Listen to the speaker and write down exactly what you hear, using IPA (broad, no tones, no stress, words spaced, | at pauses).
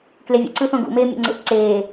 klevʲṵǀɯθõ ɡṵmeːmʲo̰ ŋ͡ǀḛʔǀeː